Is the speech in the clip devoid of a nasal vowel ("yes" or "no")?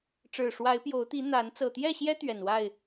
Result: yes